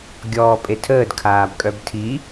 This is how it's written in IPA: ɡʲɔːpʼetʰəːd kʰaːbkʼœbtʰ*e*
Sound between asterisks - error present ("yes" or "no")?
yes